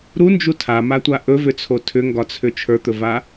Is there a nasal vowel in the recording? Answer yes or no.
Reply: no